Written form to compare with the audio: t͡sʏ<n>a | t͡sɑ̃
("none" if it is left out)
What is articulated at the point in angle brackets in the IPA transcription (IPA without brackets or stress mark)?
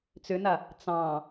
n